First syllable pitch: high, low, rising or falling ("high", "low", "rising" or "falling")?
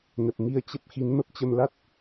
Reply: low